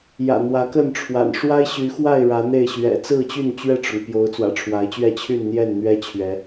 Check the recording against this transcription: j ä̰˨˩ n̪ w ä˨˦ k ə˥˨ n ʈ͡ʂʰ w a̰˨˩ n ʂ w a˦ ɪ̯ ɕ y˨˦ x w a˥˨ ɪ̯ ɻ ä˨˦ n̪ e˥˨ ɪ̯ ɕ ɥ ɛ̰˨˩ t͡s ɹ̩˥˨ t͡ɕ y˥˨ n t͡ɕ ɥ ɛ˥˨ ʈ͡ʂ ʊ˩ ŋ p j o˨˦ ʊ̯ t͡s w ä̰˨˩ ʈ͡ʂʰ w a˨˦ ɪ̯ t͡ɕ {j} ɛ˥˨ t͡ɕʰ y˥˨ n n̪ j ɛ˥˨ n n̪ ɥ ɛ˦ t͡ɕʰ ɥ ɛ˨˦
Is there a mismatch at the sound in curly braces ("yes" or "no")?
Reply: yes